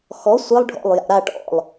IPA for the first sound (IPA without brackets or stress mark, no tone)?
x